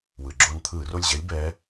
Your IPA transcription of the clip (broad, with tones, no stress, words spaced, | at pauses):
wɯ˩ɡ͡ǁo˦˨n t̪ʰɯː˧˩˧ro˦˨lʲʑɛ˧˥lʲ bɛː˧˥